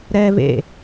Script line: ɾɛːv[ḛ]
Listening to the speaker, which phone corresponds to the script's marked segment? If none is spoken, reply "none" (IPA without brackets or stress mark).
ḛ